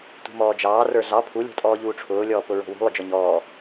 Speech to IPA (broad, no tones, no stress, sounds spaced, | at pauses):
t ṳ m ɔː d͡ʒ ɑː r ə˞ ɮ ɑ pʰ u lʲ ṳ tʼ ɔː ʎ uː ʈ͡ʂʰ ʊː lʲ ɔː p ʊ ɹ ɔ̤ w ṳ lˠ ʊ d͡ʒ ɔ ɲ ɔː